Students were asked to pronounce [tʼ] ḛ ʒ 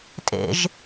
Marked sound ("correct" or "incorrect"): correct